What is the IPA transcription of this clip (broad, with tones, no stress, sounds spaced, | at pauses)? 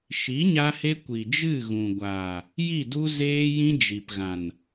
ʃ i˨˦ ɲ a˧ h e˧ kʷ i˨ d͡ʒ ɨ˦˨ ɣ ũ˨ ɡʷ aː˨ | j i˦˨ d u˦ z eː˦ j ĩ˦ d͡ʒ i˨ p ɣ ã˨ n